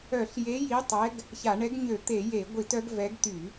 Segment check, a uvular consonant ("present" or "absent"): absent